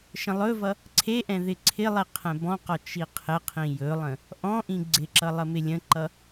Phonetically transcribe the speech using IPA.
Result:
ʃ ə̃ lˠ ɵ v ʌ | ǀʰ e ʔ ɛ̃ ð ɪ ǀʰ ɪ lˠ i qʰ ɛ̃ b ɔ̃ q ɔ t͡ʃ i qʰ ɪ qʰ ĩ j ɵ lˠ ə̃ | ʔ ɔ̃ ʔ ĩ ɡ͡ǀ ɪ ǁ ʌ lˠ ə m ɪ lʲ ə̃ ǃ ʌ

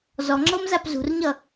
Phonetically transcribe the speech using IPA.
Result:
z ɔ ŋ͡ǁ ɤ m z a p z ṳ r ɲ ʌ

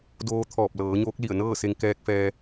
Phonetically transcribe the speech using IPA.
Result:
d oː˧ t̪ʰ ɔː˧˩ p̚ l ɤː˩˧ ɲ oː˧˥ k̚ l i˧˩ ə̯ n ɤː˥˨ s e˧ ŋ k ɛː˧ k̚ f ɛː˧

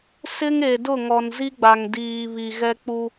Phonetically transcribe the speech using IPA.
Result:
s ɪ˦ ŋ e˨ d ʊ˦˨ ŋ ɔ˨ n z i˦ ɡ͡b a˨ ŋ d iː˨ β i˨ ɣ ɛ˦ k͡p u˦

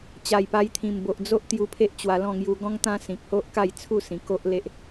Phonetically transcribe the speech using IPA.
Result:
t͡ɕ a˨˩ j p a˧ j t̪ʰ ĩ˨˩ m b o˨ ʔ d͡z o˦ ʔ t̪ j u˧ pʰ e˦ ʔ t͡ɕ w a˧ l ɔ̃˥˧ ŋ j u˧ ɡ ɔ̃˦ ŋ t̪ ã˦ s ĩ˨ k̚ h o˦ ʔ k a˥˧ j t͡sʰ u˥˧ s ĩ˨˩ k o˦ ʔ l e˦ ʔ

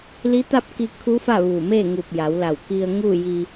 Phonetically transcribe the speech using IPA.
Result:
l i˧˥ t̪ a˥˨ p̚ k i˧ kʰ u˧˥ f a˥˨ ʋ u˧˩ m eː˥˨ ŋ u˧˩ p̚ j a˩˧ w l a˧˩ w k i˧ ə̯ ŋ uː˥˨ j i˧

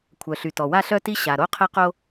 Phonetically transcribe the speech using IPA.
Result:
kʷʰ œ˩ ɬ y˩ t ɔ˩ w a˥ ɬ œ˥ t i˥ ɕ a˩ ɾ o˥ qʰ ɛ˥ q o˥

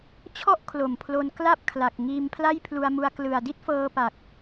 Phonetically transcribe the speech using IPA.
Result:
t͡ɕʰ ɔ˥˩ ʔ kʰ l o˨˩ m pʰ l o˧ n k l a˥˩ p̚ kʰ l a˨˩ k̚ ŋ iː˧ m pʰ l a˥˩ j pʰ l u˧ a̯ m u˧ a̯ k l ɯ˨˩ a̯ d i˥˩ t̚ f ɤː˧ p a˨˩ k̚

